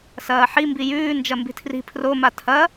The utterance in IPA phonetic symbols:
s ɐː ħ i m b i j ʉː n d͡ʒ ɐ m b i̤ tʰ r i̤ pʰ r o m a tʰ ɐ

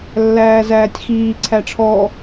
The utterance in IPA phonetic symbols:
lː æː z æː tʲ x iː ǀʰ æ ʈ͡ʂʰ ɔ

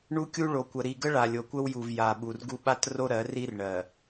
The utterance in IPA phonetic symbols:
ɳ u˦ kʲ u˦ ɭ o˨ kʷ ə˨ ɾ i˨ ɡ ə˦ ɭ a˨ lʲ o˨ kʷ ə˦ w j u˨ v j a˨ ɓ u˨ r ɡ u˦ ɓ a˦ t r o˦ ɾ ɜ˨˦ r i˦ r ɳ ɜ˨

